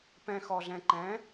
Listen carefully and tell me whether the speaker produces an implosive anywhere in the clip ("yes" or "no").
no